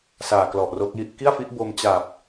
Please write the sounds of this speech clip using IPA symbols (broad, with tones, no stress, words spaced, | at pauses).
saː˨˩klɔ˨˩ʔro˦˥k̚ji˥˩ʔ ki˥˩a̯fi˦˥ʔ bo˧mt͡ɕa˨˩p̚